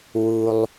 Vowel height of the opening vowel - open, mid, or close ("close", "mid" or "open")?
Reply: close